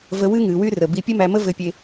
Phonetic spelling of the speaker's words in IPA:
və˧ wɨ˥ ŋɨ˩˧wy˥ rə˩bi˧ pʲɘ˥mæ˧mə˥ vɘ˧˥pʲe˧

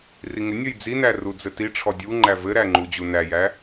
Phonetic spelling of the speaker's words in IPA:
riŋɪnʲəj d͡zinæ rud͡zɘtiʈ͡ʂʰɔ dʲuŋ͡ǃæ vɘɾæ ŋ͡ǃud͡ʑunæjæ

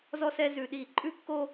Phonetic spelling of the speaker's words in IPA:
zɔ˦sɛ˦ zʉ˦ ɗi˧˩ǃʼʉ˦kːo˦

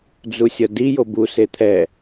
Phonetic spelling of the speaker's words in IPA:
d͡zusʲʌdi jobu set̪ʰɛ

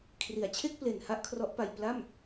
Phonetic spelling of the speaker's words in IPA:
kʰri˨˩a̯t͡ɕʰe˥˩k̚ ple˨˩n ha˥˩ʔkʰrɔ˦˥ʔpa˧j pla˥˩m

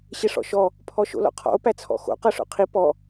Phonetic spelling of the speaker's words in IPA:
ɕɪʂɔ̰ʃɔ | pʰɔʃo̰lɔ̰qʰɔ̰o̯ pæt͡sʰɔ̰xo̰ qɤʂo̰qʰi pɔ

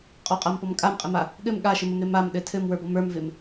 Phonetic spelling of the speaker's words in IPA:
qʼɔqʼampɔm kʼamqʼɘma | ɠɘm ɠaʃɪməmɾɪ mamɗɘ tʰɘmwə˞bɔm ə˞mvɪm

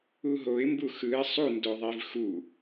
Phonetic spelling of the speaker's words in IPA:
uɦoɪ̯ mbuxɯɪ̯ sˤu ndoðˤivxu

